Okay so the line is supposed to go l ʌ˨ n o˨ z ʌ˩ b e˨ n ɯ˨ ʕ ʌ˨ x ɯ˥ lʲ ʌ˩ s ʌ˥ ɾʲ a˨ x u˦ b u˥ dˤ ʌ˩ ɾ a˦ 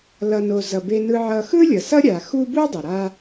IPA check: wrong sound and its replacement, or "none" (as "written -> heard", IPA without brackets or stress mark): none